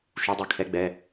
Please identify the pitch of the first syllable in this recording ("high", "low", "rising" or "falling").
rising